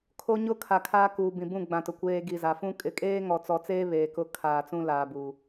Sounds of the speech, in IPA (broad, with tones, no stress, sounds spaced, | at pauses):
kʰ o˨ ɲ ʊ˦ kʰ a˨ kʰ aː˦ k uː˨ b ĩ˨ b ũ˦˨ ɡ͡b ã˨ t ʊ˨ kʷ eː˨ ɡ i˨ z a˨ f ũ˦ kʼ ɪ˨˦ kʼ eː˦ ŋ ɔ˨ t͡s ɔ˨ t͡s eː˦ β eː˨ k ʊ˦ kʰ aː˨ t͡s ũ˦ l aː˨ b u˨